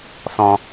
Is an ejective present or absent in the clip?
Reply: absent